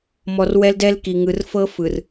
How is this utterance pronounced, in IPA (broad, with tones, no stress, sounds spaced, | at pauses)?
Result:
m ɔ˨ r w ɛ˦ l d ɛ˦ l k i˨ ŋ ɯ˨ r f ɤ˦ f ɯ˨ r